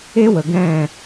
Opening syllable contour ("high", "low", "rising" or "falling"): high